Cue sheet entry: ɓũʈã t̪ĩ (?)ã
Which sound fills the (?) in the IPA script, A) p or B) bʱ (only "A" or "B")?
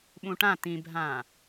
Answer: B